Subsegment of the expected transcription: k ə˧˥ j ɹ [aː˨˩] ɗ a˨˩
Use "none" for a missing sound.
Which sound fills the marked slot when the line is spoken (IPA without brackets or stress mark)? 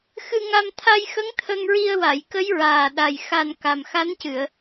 aː˨˩